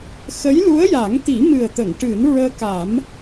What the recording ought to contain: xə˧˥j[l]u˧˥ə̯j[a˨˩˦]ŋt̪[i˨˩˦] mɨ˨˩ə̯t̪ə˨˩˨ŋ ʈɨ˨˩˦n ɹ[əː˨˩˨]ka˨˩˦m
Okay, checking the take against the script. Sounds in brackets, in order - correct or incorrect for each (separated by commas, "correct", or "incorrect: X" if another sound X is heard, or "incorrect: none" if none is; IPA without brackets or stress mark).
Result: correct, correct, correct, incorrect: əː˧